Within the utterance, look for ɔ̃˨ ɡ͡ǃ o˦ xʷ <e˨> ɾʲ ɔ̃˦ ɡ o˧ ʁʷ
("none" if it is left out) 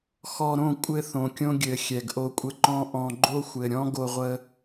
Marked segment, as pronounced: ɘ˨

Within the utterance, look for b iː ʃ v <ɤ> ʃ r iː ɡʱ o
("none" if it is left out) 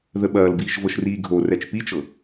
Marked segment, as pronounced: ɤ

